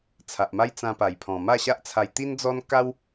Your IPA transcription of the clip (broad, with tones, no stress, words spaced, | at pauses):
t͡sʰa˨ʔma˦j t͡sã˧pa˨˩jpʰɔ̃˨˩ ma˥˧ɕa˦ʔt͡sʰa˧j t̪i˦nd͡zɔ˦n ka˦w